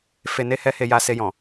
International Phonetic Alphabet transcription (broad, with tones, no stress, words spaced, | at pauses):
fe˧ne˦hɛ˦ he˧ja˧ se˧jɔ̃˨